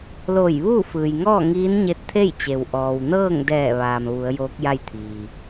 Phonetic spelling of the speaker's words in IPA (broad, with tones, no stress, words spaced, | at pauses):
loː˧˩jʋuː˥˨fɯː˩jŋɔː˥˨ ŋiː˧˥nɲe˧˥t̚t̪ʰe˥˨jt͡ɕe˩w ʔɔː˩wnɤː˥˨ŋdɛː˧˩ʋaː˩m ʋu˩˧ə̯joː˧˥k̚ja˥˨jt̪ʰiː˩